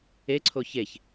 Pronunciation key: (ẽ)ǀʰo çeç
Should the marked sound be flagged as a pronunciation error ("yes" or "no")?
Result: yes